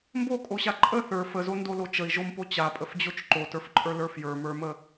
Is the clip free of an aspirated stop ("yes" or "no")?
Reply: yes